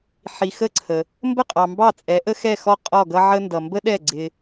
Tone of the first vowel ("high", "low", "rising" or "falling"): low